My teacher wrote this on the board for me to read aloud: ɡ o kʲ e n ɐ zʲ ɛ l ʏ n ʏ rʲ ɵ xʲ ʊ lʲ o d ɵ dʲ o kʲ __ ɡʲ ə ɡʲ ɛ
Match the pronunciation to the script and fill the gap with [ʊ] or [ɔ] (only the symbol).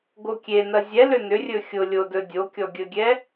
ɔ